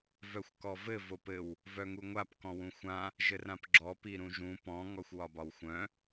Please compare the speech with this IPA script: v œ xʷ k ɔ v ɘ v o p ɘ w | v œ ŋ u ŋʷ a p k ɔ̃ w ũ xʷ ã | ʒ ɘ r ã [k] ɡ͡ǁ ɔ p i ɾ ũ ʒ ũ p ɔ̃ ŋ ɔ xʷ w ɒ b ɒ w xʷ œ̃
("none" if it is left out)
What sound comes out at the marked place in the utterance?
p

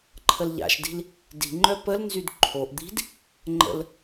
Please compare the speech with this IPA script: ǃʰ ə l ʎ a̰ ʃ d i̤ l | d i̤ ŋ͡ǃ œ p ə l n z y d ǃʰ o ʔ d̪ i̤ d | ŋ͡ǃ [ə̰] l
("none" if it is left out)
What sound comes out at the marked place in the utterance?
ə̰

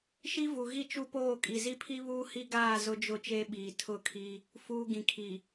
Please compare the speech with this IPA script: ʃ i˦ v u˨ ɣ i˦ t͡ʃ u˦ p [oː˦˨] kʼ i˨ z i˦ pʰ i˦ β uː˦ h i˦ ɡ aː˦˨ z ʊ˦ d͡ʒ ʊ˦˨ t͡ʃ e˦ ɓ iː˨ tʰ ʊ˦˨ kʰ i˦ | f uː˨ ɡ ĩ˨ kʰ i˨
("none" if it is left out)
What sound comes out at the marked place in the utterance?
oː˦˨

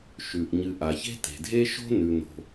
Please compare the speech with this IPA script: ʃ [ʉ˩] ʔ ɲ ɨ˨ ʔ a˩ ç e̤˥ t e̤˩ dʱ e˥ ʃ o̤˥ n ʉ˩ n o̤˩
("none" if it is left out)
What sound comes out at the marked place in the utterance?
ʉ˩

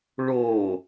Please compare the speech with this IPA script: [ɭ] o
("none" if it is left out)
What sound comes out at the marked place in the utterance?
ɭ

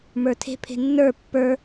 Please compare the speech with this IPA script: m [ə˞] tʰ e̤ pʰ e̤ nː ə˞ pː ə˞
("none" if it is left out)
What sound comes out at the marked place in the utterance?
ə˞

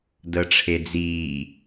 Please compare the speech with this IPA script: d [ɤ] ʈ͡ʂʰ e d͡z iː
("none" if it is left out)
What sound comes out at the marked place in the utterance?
ɤ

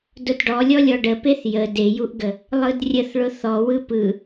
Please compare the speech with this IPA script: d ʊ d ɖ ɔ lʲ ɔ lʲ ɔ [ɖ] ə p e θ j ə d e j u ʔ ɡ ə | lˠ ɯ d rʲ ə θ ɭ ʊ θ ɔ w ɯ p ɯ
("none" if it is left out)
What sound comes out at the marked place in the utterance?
ɖ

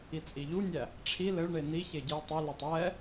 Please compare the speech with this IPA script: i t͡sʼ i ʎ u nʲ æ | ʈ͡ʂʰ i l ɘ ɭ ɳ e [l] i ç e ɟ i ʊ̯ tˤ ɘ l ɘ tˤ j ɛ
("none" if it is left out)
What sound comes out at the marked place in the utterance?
n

